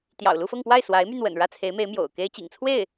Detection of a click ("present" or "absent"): absent